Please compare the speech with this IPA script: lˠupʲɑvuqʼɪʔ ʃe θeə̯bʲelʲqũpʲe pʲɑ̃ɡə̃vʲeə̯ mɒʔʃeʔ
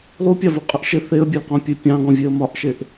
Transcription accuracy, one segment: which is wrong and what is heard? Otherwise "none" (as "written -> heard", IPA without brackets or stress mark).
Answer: ə̃ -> ɔ̃